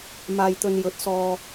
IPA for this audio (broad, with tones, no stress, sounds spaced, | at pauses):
m aː˧ j t̪ ɵ˧ n j ɵ˨˥ t̚ s ɔː˧